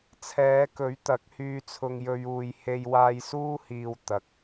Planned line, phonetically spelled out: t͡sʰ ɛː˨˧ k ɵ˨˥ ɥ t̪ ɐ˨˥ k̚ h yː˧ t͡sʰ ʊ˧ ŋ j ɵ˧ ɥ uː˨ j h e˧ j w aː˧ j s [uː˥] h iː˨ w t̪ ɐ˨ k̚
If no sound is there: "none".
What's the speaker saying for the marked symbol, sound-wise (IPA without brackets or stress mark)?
uː˥